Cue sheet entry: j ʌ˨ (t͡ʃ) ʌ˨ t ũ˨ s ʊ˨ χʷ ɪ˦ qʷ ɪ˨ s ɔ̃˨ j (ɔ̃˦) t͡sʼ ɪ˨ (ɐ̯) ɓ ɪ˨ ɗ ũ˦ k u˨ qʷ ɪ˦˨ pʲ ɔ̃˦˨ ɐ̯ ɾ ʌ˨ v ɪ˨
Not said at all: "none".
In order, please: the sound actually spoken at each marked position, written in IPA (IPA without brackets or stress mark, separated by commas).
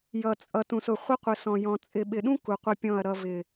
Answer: t͡sʼ, ɔ̃˨, none